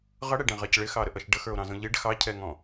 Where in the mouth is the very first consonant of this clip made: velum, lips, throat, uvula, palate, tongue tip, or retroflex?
uvula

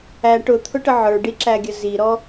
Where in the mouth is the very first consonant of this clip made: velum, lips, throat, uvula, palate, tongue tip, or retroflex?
retroflex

